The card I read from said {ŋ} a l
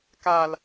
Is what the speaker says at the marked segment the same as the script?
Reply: no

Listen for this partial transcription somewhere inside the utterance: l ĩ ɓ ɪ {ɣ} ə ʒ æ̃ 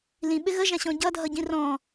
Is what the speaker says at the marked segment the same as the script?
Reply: yes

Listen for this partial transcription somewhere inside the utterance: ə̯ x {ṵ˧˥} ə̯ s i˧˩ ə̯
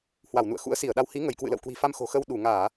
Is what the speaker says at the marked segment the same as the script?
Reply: yes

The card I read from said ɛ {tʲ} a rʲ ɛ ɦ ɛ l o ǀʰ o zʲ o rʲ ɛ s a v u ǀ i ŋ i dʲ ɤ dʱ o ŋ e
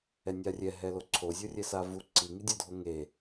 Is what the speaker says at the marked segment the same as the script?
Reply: no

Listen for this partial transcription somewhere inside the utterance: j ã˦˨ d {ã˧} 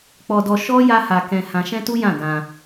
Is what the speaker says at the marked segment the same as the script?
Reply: yes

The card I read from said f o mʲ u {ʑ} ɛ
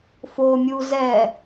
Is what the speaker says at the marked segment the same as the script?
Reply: no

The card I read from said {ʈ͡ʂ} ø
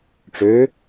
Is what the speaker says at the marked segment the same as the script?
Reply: yes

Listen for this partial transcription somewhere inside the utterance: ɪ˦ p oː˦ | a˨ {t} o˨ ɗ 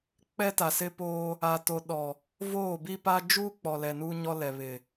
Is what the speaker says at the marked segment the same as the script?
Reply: yes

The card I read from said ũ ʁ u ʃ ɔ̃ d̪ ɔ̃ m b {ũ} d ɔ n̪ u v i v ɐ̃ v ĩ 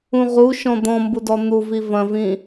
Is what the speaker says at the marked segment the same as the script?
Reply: no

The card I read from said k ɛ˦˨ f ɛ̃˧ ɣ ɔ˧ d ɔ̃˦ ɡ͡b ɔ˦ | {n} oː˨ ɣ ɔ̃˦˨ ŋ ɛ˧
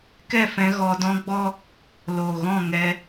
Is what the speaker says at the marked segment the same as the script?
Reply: no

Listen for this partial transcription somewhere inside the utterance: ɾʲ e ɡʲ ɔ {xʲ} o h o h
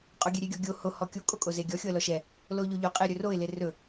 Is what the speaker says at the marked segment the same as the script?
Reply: no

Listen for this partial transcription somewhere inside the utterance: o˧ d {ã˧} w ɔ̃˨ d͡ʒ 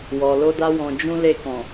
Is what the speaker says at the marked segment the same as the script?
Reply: no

